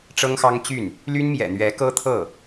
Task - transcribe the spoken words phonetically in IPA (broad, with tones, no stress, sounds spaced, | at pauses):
ʈ͡ʂ ɤ˥ ŋ x ɑ˥ ŋ t͡ɕ y˥˩ n | l y˥ n m j ɛ̰˨˩ n̪ ɥ ɛ˧˥ k ɤ˥ t̪ʰ ɤ˥˩